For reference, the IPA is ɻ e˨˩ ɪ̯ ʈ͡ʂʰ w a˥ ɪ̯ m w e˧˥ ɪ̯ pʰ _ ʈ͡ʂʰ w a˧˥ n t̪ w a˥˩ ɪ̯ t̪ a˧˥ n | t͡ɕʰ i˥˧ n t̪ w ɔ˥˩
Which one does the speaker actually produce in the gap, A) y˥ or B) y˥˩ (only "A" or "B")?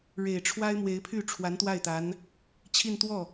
B